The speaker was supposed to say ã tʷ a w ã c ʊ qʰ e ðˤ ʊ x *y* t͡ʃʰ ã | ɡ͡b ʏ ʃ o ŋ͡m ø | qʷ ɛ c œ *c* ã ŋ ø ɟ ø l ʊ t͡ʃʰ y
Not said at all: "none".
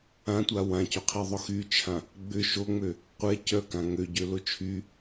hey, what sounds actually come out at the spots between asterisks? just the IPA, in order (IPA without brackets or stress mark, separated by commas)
y, k